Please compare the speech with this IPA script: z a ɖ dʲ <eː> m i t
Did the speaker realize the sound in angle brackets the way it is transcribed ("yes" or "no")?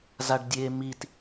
yes